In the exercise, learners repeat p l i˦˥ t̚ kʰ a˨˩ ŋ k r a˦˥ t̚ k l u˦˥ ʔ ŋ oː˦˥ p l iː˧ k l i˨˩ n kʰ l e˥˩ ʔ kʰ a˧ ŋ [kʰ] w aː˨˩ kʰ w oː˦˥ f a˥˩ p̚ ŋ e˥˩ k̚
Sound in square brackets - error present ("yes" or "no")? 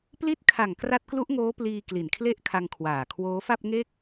no